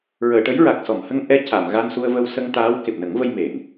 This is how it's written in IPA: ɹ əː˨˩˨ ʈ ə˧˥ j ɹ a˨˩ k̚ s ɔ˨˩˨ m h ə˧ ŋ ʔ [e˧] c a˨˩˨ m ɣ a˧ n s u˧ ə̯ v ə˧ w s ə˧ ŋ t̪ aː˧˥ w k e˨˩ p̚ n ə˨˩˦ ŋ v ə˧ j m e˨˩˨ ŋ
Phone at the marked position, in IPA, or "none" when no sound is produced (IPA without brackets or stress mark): ɛ˧